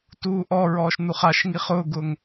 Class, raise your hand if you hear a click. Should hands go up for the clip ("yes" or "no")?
no